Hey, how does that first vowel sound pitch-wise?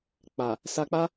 low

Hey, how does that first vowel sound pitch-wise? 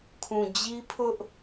low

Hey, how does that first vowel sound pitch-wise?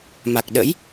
low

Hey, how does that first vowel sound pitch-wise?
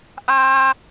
high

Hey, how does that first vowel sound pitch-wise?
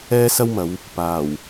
high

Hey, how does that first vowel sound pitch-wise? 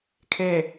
low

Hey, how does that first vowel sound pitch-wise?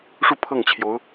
falling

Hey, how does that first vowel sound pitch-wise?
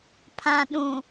low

